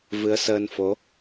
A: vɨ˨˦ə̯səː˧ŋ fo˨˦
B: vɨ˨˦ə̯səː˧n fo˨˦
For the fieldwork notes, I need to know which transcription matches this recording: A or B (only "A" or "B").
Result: B